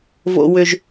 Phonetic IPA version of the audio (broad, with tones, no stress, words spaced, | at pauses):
vo̰˦wʏ˦ʒ